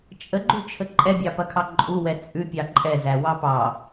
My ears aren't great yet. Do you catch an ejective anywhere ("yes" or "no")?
yes